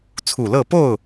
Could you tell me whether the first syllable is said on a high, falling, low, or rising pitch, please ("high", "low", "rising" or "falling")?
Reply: low